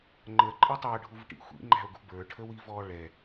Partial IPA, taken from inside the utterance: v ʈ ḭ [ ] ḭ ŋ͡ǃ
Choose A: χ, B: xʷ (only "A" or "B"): B